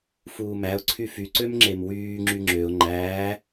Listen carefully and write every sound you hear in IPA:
f uː m æ ʊ̯ ǀʰ y f y ǀ ø m ŋ͡ǁ e m w yː ŋ͡ǁ y ŋ͡ǁ ø ʊ̯ ŋ͡ǃ æː

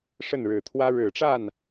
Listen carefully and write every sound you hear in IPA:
ʂ ə˥˩ n ɻ ɻ̩˨˩ t̪ʰ w ä˥ ɻ ɻ̩˨˩ ʈ͡ʂ a˥˩ n

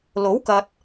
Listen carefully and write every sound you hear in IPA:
l o˨˥ w k ɐ˨ t̚

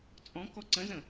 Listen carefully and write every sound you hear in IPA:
t͡sʼ ɔ̃ k ɔ ǀ ə̃ z ə̃

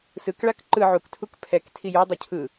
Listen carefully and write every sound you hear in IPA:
s ɯ k ɭ a k ǃ ɯ ʕ u k tʰ u k pʰ ɛ k tʰ i j o dˤ o cʰ ɯ

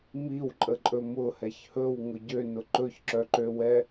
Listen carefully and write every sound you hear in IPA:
m i w ǃʼ ə ǃʼ ɵ m ʊ h ɛ ç h ɵ w ŋ ʊ ɟ ø n ʊ ǃ ɵ ç ǁ œ ǃ ø w ɛ

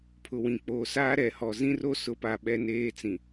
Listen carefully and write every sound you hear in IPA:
pʰ ʊ˨ w ĩ˨ k͡p oː˨ s aː˦ ɾ ɛ˨ h ɔ˨ z ĩ˦ r o˦ s ʊ˨˦ p a˨ ɓ ɛ˦ n eː˦ t͡s ĩ˨

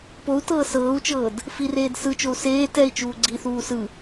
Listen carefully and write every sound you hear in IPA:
p o u̯ t ɤː s ɤː u̯ t͡ʃ ɤː d | f i r eː d s ɯ t͡ʃ o u̯ s eː t ɛ i̯ t͡ʃ uː ɡ͡ǀ i θ uː s ɯ

